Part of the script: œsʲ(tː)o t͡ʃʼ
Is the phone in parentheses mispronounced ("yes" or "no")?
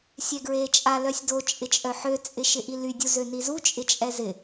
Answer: yes